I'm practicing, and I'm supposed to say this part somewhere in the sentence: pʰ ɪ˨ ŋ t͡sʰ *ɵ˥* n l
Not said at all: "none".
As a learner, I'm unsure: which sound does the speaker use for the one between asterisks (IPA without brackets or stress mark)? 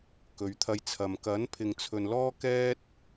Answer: ɵ˨